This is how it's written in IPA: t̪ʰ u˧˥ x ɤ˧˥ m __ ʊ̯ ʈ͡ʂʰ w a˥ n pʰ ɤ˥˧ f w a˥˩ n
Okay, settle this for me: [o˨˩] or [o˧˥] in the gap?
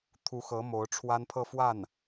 o˧˥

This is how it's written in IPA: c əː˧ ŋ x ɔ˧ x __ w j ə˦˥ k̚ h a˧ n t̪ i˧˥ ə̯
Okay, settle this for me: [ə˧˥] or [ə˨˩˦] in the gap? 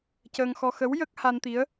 ə˧˥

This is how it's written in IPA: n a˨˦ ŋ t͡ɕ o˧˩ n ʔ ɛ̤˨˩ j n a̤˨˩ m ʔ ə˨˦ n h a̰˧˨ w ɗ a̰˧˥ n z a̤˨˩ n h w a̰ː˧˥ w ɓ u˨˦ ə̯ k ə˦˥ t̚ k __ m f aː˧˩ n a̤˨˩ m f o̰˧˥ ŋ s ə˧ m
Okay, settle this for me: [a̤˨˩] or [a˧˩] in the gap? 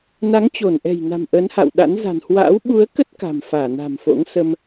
a̤˨˩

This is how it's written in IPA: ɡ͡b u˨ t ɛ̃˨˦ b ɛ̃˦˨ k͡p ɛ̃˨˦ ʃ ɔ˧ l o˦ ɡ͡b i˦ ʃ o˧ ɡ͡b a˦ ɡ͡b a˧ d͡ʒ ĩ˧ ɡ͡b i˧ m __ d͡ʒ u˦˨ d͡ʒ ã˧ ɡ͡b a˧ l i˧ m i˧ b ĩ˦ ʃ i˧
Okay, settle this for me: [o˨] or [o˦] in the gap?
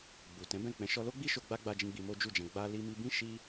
o˦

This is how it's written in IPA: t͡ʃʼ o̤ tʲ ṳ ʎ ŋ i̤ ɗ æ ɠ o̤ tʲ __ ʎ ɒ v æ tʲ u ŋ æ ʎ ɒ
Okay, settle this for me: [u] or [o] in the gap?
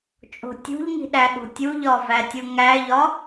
u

